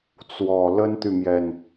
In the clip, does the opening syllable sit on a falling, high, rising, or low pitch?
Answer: low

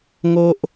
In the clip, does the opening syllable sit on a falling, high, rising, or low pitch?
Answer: high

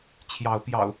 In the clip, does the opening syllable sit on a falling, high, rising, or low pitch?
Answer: rising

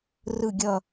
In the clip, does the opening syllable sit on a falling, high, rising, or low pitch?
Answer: falling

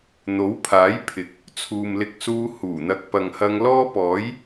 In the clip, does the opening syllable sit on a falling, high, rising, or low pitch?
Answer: rising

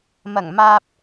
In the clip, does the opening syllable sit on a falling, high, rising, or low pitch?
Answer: low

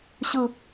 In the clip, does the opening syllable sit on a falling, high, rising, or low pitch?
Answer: falling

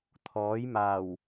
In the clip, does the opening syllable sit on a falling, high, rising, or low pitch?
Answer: rising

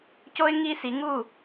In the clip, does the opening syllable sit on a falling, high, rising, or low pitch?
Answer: high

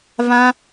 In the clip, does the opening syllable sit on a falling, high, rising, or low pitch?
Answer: high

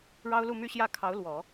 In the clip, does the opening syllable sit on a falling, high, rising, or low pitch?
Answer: high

